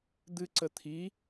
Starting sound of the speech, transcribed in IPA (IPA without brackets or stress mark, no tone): d̪